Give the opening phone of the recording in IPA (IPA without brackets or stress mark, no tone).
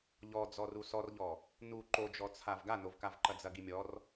ʎ